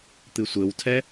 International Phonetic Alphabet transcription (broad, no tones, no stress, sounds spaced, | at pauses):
t̪ ɨ sʷ ɘ w tʰ ɛ